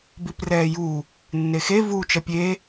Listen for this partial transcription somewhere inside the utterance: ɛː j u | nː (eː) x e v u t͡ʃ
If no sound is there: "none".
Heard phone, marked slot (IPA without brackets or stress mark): e